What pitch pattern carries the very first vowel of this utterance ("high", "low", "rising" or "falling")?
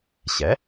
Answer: rising